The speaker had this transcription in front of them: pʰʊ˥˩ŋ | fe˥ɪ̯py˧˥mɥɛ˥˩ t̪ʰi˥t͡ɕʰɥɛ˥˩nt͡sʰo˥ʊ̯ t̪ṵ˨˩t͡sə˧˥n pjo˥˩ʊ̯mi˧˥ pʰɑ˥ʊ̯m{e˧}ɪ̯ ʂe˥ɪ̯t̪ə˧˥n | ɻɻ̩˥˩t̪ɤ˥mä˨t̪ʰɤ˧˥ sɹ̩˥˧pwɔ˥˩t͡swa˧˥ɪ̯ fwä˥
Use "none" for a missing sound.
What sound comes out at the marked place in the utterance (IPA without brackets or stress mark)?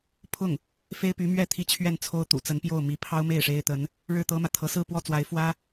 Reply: e˥˩